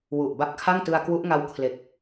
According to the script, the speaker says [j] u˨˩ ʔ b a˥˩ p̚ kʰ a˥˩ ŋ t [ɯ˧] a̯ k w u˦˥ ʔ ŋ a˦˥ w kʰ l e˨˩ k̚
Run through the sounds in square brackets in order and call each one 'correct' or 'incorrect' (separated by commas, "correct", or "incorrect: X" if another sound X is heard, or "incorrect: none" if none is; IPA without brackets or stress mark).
incorrect: w, correct